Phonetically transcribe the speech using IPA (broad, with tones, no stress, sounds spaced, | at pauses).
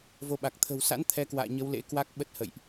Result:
v o˧ ɓ a˨˩ k̚ t̪ʰ ə̤˨˩ w s a̰˧˥ n t̪ʰ ɛ˨˦ k w a̰ː˧˨ ɲ ə˨˦ w l ḛ˧˥ k w a˦˥ k̚ ɓ ə˦˥ t̚ h ə̰˧˨ j ʔ